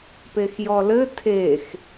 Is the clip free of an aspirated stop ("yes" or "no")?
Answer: no